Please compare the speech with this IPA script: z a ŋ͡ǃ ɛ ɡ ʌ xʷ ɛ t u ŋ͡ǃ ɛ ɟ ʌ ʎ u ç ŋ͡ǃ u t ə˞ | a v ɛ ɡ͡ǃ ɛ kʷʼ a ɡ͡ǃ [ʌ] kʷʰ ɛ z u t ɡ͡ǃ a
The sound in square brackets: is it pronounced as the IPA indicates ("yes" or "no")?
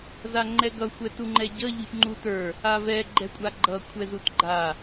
yes